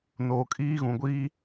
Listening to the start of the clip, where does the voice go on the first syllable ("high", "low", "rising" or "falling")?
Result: low